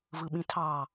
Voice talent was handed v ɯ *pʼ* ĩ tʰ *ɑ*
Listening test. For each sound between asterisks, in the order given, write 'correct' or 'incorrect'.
incorrect, correct

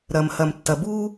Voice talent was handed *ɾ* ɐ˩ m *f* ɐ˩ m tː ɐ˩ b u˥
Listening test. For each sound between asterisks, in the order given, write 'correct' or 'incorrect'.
correct, incorrect

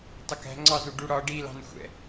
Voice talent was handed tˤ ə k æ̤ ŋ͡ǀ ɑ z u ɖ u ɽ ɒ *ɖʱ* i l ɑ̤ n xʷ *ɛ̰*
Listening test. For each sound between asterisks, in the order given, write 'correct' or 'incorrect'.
incorrect, correct

